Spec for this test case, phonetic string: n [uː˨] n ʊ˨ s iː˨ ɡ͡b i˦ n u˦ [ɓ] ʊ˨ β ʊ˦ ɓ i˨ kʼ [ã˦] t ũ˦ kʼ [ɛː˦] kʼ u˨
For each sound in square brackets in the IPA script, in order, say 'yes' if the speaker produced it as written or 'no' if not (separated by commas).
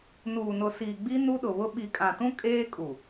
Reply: yes, no, no, no